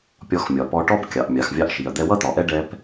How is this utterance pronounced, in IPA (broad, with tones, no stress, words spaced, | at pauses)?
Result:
pʲɔ˧xmʲɒ˩pɔ˧ʈɔ˥b kʲɑ˩ʔ mʲɑ˩xvʲɑ˧ʔʃi˩ɐ̯ d̪ɛ˧wʌ˥t̪ɒ˩ʔɛ˥ ɖɛ˧p